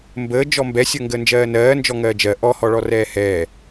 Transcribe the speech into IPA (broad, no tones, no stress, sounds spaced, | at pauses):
m b əː d͡ʒ ɔ m b ɛ sʲ əː ŋ ɡ əː n d͡ʒ ɜː n ɜː n d͡ʒ ɔ ŋ ɜː d͡ʒ ɜ ʔ ɔ h ɔ ɭ ɔ r ɛː h ɛː